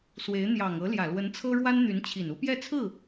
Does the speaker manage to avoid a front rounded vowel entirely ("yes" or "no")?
no